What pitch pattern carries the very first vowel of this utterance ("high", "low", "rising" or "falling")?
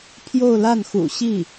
falling